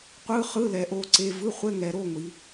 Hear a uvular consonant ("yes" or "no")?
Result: yes